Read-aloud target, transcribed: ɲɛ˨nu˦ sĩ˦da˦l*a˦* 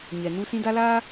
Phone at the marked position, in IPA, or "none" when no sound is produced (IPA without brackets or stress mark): aː˦